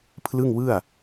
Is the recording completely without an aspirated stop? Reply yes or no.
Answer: no